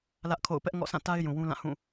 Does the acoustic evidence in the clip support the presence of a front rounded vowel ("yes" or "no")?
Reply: no